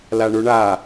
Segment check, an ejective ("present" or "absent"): absent